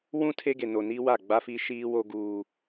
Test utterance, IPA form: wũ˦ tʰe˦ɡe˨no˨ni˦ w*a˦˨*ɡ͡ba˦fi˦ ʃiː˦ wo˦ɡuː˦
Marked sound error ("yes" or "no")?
no